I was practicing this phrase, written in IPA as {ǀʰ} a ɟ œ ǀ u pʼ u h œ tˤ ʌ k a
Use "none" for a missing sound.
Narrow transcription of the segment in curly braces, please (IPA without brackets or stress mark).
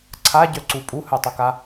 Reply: ǀʰ